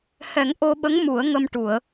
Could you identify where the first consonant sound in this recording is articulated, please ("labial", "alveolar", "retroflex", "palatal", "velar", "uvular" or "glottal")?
glottal